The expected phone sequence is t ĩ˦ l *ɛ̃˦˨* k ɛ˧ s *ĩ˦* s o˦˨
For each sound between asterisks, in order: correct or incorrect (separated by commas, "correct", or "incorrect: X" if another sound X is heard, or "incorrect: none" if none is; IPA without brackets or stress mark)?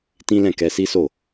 correct, incorrect: i˦